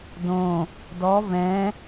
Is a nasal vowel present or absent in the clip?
present